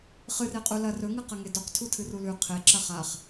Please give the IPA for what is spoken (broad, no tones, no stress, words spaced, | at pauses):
χɨre qʼulɐ rɵŋɨqɐ ŋedoq tʰutʰɨrulʉ qʰeǁɐ χaχ